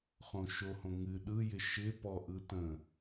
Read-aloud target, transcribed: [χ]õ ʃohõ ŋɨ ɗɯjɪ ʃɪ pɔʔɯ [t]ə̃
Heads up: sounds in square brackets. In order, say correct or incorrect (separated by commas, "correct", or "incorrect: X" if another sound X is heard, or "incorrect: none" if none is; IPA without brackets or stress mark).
correct, correct